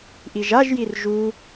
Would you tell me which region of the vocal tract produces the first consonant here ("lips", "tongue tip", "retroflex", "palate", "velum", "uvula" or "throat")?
throat